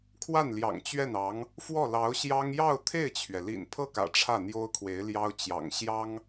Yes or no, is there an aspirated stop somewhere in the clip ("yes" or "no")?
yes